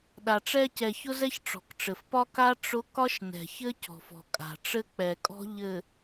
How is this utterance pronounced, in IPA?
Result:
ɗa˨ʈ͡ʂɛ˦ cɛ˨çʊ˦zɛ˦ç ʈ͡ʂɔ̤˨k ʈ͡ʂɘ˨fpɒ˦ ka˦ ʈ͡ʂʊ˨˦ kɒ˦ʃnɛ̤˨çɘ˦ cɔ̤˨fɔ̤˨kʼa̤˨ ʈ͡ʂɘ˦k͡pɛ˨kʼɔ̤˦ ʎɘ˨

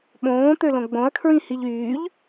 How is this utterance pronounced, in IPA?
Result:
ɓõːt̪ølõ ɡ͡bõɐ̯kʰɹĩhiʎ yːʎ

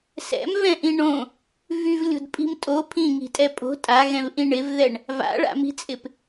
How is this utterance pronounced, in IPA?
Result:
sɛ̰mvɛ̃ʔĩ ɳõ | vyvlʲo̤dpʼi̤m tʼo pʰĩŋi̤tʼɛ pʼo̤ tʼaɣɛ̃vʔĩ ɳɪvðɛɳ | va̰ɭa̰mi̤t͡sʼɪp

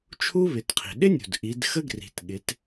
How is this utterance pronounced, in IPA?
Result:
t͡ʃʰu˥βɪ˩˧tqʰi̤˩ ɗɪ˥nʲṳ˩d ʔi˩˧dxə˥ɡri̤˩˧tɠɪ˩˧t

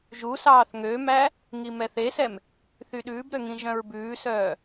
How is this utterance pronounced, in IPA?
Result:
ʒusɑːθ ŋømæ | ŋimɛθesɛm | θyɗʉːbɾø ŋĩʒœ̃ɹbʉːsœː

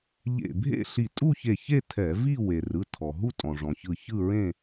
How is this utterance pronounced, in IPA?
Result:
ʎḛ˧˩bʱḛ˥˧ ɬi˧˩tʼu˥˧çe˧˩çe˥˧ tʰɛ˧˩˧ vi˥˧ we˩rɯ˩˧˩tʰɔ˩ ɦu˥˧tʼɔ̃˩ʐɔ̃˩çɯ˧˩ çɯ˥˧ɹẽ˥˧

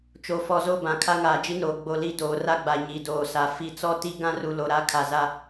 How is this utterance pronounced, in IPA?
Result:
t͡ʃo˨fɔ˨ zo˦˨bã˨ kʰa˦ŋaː˨d͡ʒi˦noː˨ ɡ͡bo˨ li˦doː˨ ra˦ɡ͡ba˨ ɲi˨doː˨sa˨ fi˨t͡sɔ˦ti˦ ɡã˦ru˨ lo˨ɾa˦kʰa˨za˦

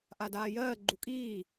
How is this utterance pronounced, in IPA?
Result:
ʔadaːjɜː ɡ͡ǃukʼiː

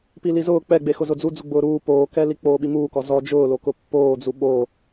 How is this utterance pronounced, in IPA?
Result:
pilizʊː k͡pɛɡ͡be xʊzʊd͡zu d͡zuɡ͡bʊːɾuː poːkɛli k͡poːɓimuːkɔ zɔ d͡ʒʊːlokʊ pːoːd͡zu ɓoː

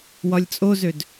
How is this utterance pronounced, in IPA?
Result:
wɒlʲt͡sʼozød

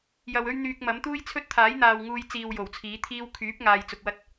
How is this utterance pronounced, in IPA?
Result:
jɐ˧wɵ˥ɥn̪yː˧k̚mɐ˨˥m t̪uː˥jt͡sʰɵ˥t̚t̪ʰaː˨˥jn̪aː˨w ŋuː˧jt͡siː˨w jo˨˩wt͡sʰiː˨˥t̪ʰiː˥w kʰyː˨˥p̚ ŋaː˧jt͡sʊ˧k̚wɐ˥t̚

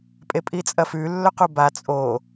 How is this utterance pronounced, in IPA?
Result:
pʼepʼit͡sʼɐfʉ lːɵquba t͡sʼo

